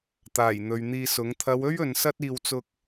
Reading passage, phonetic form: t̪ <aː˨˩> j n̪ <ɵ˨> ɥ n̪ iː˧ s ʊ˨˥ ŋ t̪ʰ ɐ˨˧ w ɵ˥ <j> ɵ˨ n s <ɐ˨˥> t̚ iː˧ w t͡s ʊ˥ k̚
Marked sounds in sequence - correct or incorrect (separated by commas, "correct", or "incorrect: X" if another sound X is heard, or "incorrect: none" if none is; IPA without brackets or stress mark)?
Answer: correct, correct, incorrect: ɥ, incorrect: ɐ˥